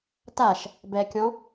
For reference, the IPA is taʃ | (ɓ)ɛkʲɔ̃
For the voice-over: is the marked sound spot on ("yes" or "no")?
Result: no